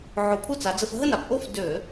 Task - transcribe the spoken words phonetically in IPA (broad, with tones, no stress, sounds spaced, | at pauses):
ʕ o˧˩˧ pʰ u˥˩ t͡s a˨˦ d͡z ə˧˥˧ f ɦ ə˥˩ n a˧˩˧ p ʔ o˥˩ f d ø˧˩˧